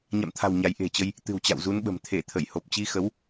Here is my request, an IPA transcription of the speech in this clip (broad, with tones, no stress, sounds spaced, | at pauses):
ɲ a̰˧˨ m t̪ʰ a̤˨˩ w ɲ a˨˦ j ʔ e̤˨˩ t͡ɕ ə˧ j | t̪ ɨ̤˨˩ w t͡ɕ a̰˧˨ w z u˨˦ n ɓ ə̤˨˩ m t̪ʰ e˧˩ t̪ʰ ə˧˩ j h o˨˩ p̚ t͡ɕ i˧ x ə˨˦ w